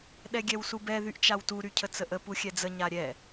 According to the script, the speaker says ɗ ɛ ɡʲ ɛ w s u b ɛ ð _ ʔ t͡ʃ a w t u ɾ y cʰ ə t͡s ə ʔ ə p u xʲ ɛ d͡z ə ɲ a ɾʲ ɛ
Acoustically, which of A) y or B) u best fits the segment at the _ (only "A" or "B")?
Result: A